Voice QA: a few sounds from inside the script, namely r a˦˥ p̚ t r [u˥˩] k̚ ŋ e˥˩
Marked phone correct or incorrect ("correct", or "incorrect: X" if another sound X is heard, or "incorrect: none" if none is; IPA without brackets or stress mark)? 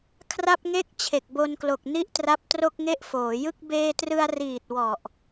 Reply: incorrect: o˥˩